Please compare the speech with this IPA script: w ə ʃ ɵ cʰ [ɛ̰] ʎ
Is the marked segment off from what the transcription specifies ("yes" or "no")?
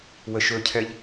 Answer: yes